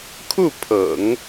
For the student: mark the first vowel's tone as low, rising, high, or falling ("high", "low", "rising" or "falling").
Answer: falling